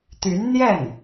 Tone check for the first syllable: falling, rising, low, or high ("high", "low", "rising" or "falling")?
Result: rising